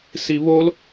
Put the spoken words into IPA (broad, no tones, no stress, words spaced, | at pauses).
siβol